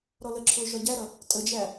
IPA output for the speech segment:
ɾɔləǁʰʊː ʒɒɟæɾʌ | tʼəd͡ʒæ

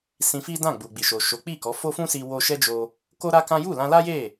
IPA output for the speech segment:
sĩ˧fi˦dã˦˨ ɡ͡bu˨ɡ͡bi˨ʃo˨ ʃo˨˦k͡pi˦˨kɔ˨˦ fo˦fũ˦si˧ wo˧ʃɛ˦d͡ʒo˧ | ko˦ɾa˦kã˦ ju˦˨lã˧la˦je˦˨

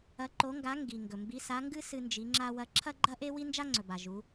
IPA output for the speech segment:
ɐ˧˥ǃo˧˥ŋɡa˧˥ ŋɡi˨ ŋɡɵ˨mbi˧˥sa˧˥ŋɡɨ˥ sɨ˥nd͡ʒi˧˥ŋ͡ǁa˥wɐ˥ ǁʰɐ˥ɡ͡ǃɐ˥ʔe˥ wi˥nd͡ʒa˥ŋ͡ǀɵ˨ba˨ ʒu˧˥

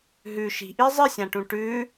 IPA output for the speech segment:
ɦʉ ʃi̤ʔi zˤɨsʲãʈũ ʈʉ

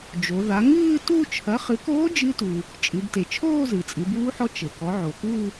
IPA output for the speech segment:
d͡ʒo˩˧ða˩˥ ŋɨː˥˧tu˥˧ t͡ʃʰɐ˩˥χɨ˩˥koː˧˥ d͡ʒɨ˧˥tu˩ | t͡ʃʼɨ˩˧bte˩ t͡ʃʰoː˥˧zɨ˩ t͡sʼɨ˩˧buː˧˥ħɔ˧˥ t͡ʃɘ˩kɔ˩˥ ʕo˩ku˥˧

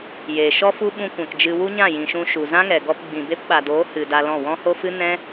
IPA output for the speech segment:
jeː˨ʃɔ˦fu˦ ɓũ˧kʷɛ̃˨k d͡ʒɨ˨ wu˦ɲã˦˨jĩ˨ʃũ˧ ʃu˨zã˦ŋɛ˨ɡɔ˧p ɡ͡bĩ˨be˦p ɓa˨doː˨˦ hɨ˨ da˧lɔ̃˦˨ wɔ̃˦ho˦fɨ˦ nɛ̃˦

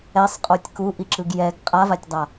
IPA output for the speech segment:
ɛsˤqʼotʲ ku ʔiǁɯɡjɛɡ qʼavatʲdˤa

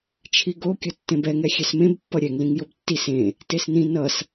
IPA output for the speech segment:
t͡ʃʰiɡo kʲʌtːẽbɛŋɛ xʲɛsmẽb pːʌɾʲɛŋlĩŋ jobtːis ẽ | tesnĩ nʌs

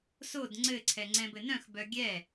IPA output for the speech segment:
sod ŋ͡ǀɘǀʰɛ ŋ͡ǀɛ̃bɘnœ̃x bœɡʲɛ

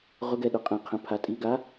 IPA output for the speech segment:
ʁʊɡɛɗʊ qʼɛ̃qʰɛ̃pʰa tʼiɡa

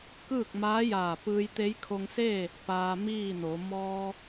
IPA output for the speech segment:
kɯː˥˨k̚maː˧˥jaː˧˩ pɯː˧jt̪e˧˥jkʰo˧ŋseː˥˨ | paː˧miː˥˨no˩˧ mɔː˧

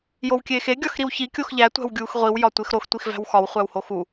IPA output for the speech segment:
jowkʲeːxe ɡʲɒxɾiwçi kʲoxʎæ tʷæ̤wɡʲuːxʁʷiw jɒtʷexɾox tʷixvæ̤wxɒw χʷæwhoxu

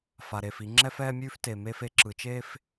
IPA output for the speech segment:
fa˨ɾe˨fi˨˦ ŋ͡ǁɛ˦fɛː˦mʲʉː˦f te˨ me˦f e˦ǁɯ˨t͡ʃeː˦f

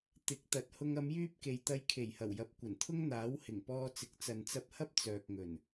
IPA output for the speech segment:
t̪ɪ˨˥k̚ t̪ɐ˨˥t̚hʊ˧ŋ ɐ˨˧mjyː˧p̚ ke˨jt̪ɐ˧jkʰe˨˩jhɐ˨˩w jɐ˨˥p̚kʷɐ˨˩nt̪ʰʊ˥ŋ n̪aː˨˥whɪ˨˩ŋpɔː˧t͡sɪ˨k̚ t͡sɐ˨nt͡sɐ˧p̚hɐ˥p̚ t͡sœː˨k̚ŋɵ˨˩n

